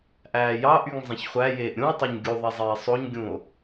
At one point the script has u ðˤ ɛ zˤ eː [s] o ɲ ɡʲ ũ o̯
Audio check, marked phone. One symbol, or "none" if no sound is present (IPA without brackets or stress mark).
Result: sˤ